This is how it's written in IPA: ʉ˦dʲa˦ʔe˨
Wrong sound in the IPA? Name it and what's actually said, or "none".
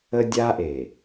ʉ˦ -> ə˦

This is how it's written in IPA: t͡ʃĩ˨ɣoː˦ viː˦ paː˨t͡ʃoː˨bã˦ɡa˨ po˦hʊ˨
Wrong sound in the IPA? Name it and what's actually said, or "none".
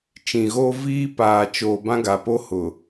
none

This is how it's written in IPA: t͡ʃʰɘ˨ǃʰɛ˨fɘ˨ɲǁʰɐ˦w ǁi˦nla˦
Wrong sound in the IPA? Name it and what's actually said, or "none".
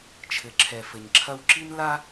ǃʰ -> ǁʰ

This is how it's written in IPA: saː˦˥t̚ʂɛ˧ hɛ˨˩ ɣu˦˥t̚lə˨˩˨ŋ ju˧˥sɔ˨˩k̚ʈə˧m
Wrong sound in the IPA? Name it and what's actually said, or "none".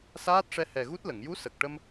ɔ˨˩ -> ə˨˩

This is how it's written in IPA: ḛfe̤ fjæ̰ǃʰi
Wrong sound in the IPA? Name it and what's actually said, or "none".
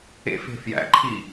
none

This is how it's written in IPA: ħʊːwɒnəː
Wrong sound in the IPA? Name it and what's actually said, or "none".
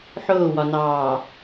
əː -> ɑː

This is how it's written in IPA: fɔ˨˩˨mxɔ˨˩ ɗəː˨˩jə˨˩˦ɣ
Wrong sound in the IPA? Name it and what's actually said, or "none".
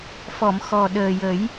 ɣ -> j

